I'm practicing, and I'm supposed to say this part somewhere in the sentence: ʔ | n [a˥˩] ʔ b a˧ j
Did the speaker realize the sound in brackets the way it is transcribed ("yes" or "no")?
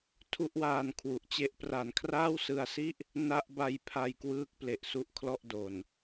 yes